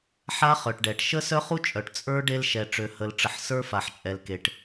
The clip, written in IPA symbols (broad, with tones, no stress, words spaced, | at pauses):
ħa˦χœ˨ʈɖɛ˨ʈ ʃə˦sœ˦χu˦ t͡ʃʼœ˨ʈ t͡sʼə˞˦ɖe˦l ʃɛ˨ʈ͡ʂø˨ hə˨lʈ͡ʂə˨ħ sə˞˦fa˨ħt͡ʃʼɛ˨l ke˨ʈ